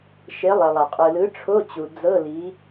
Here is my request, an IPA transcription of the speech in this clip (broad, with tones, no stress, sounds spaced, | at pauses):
ʃ e˨˥ lˠ e˩ lˠ a˩ qʼ ɯ˩ l ɯ˨˥ ʈ͡ʂʰ o˧˥˧ t͡ɕ u˩ d͡z ɤ˧˥˧ l i˨˥